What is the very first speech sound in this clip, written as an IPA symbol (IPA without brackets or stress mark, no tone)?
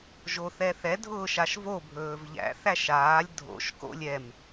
ʒ